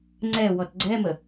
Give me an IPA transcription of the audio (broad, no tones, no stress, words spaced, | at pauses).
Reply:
ŋ͡ǀɛ wɔtɡ͡ǀɛmə